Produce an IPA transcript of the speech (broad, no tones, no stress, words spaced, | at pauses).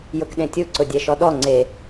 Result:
jʊkɗẽtʲu ǀʊdʲɛʃɔɗɔ ŋ͡ǀe